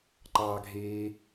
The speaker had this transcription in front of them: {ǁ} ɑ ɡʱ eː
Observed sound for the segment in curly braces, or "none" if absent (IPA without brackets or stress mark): ǃ